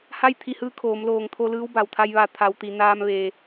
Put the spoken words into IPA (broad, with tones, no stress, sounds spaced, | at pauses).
h a˥˨ j t̪ʰ i˧ h ɯː˧˥ kʰ oː˩˧ m l oː˧˩ ŋ t̪ʰ o˧ l ɯː˧˥ w b a˩ w t̪ʰ a˧ j ʋ a˧˩ t̪ʰ a˩ w t̪ i˩ n aː˧ m ʋ eː˩